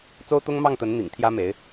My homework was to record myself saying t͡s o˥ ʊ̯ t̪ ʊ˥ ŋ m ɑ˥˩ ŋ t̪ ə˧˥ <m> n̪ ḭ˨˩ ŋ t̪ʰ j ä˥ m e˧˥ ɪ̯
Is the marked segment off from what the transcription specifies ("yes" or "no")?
yes